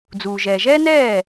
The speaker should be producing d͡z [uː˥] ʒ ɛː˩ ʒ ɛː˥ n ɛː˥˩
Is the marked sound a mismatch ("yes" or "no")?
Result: yes